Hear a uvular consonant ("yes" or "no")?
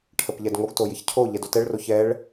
no